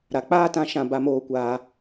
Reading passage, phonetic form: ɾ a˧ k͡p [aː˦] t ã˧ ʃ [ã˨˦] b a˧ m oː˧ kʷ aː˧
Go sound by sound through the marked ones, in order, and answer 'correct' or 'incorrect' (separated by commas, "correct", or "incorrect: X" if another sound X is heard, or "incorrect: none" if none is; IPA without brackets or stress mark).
correct, incorrect: ã˧